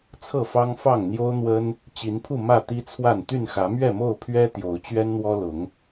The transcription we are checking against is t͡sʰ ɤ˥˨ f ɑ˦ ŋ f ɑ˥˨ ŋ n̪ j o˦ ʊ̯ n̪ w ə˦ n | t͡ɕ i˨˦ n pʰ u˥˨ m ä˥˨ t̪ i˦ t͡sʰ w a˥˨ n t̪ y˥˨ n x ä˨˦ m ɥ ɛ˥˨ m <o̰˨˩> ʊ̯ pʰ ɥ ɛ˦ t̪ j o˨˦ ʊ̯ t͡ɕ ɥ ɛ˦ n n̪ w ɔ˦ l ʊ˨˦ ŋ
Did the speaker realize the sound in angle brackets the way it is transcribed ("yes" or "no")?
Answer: no